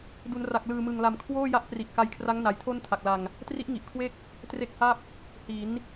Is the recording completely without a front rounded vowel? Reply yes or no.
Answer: yes